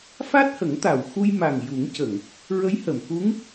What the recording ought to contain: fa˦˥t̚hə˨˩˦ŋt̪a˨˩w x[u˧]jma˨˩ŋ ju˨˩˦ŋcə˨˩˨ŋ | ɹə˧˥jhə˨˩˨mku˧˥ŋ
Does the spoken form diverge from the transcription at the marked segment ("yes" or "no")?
no